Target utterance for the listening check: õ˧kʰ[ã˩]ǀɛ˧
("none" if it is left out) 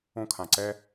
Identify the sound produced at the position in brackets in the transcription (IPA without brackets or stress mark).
ã˩